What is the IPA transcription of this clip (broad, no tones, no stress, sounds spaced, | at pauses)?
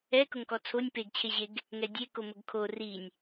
ɛ k ʊ ŋ k ɔ t͡sʰ o nʲ p e ɡ t͡ɕʰ e ʑ e ɡ | ŋ ɛ dʲ e k o m ʊ ɡ kʰ o r i nʲ